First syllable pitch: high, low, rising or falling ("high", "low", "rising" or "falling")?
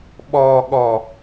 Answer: low